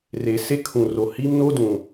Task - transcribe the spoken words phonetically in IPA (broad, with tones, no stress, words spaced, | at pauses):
re˨se˦kʰũ˨ro˨ hi˦mno˦dũ˨